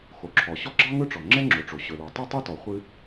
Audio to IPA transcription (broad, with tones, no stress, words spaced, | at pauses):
xo˩ǁʰɔ˩ ɕɔ˥ɡ͡ǁɑ˥ŋɵ˥ʈ͡ʂɔ˩ ŋ͡ǁɛ˥ŋ͡ǁo˩ʈ͡ʂo˩ ɕɵ˩lɔ˩ tˤɵ˥tˤɵ˥tɔ˩ χʷɨ˥